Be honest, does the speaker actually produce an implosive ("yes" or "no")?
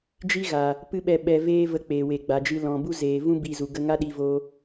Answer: yes